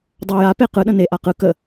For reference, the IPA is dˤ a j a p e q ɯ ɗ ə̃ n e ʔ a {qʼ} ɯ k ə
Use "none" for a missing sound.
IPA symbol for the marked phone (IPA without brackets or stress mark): q